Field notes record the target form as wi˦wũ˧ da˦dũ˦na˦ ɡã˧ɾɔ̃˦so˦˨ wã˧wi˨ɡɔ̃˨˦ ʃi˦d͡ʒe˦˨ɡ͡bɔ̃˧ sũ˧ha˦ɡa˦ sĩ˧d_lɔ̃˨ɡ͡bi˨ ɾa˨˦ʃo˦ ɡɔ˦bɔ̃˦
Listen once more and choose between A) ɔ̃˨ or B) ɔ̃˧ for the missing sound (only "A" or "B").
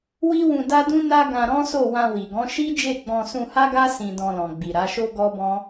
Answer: B